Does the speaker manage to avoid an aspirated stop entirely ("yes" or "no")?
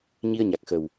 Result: yes